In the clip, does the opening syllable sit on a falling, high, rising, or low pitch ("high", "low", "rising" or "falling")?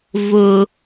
low